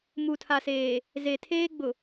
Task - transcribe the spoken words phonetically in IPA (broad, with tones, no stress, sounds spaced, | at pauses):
m u˨ tʰ a˨ s eː˨ | z e˨ tʰ eː˦ ɡ͡b ʊ˨